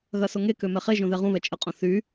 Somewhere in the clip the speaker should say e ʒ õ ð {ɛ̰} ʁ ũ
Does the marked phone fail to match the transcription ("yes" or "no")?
yes